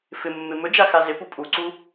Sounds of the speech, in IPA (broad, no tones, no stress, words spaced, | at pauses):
fɪmːɪ mɵd͡ʒaxa zɪpu pʼuǀu